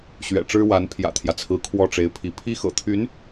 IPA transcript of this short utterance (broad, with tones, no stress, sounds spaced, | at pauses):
ɕ ɥ ɛ̰˨˩ ʈ͡ʂ ɻ̩˥ w a˧˥ n pʰ j ä̰˨˩ t̪ʰ j ä˦ t͡sʰ ɹ̩˧˥ kʰ w ɔ˥˩ ʈ͡ʂ e˧˥ ɪ̯ pʰ i˧˥ pʰ i˥ x ɤ̰˨˩ t̪ʰ y˧˥ n